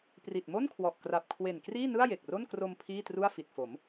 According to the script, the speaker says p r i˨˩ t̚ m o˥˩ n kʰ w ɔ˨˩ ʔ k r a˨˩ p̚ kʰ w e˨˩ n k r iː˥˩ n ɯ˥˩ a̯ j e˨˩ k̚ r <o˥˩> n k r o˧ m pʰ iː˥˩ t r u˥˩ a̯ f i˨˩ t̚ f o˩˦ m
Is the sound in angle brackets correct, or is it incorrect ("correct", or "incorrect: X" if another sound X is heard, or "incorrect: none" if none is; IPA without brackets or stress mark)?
correct